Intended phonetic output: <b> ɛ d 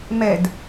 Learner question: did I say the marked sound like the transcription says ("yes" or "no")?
no